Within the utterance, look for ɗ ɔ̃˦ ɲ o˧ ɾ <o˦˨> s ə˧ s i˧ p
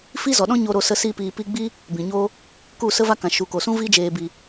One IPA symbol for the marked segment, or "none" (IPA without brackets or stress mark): o˧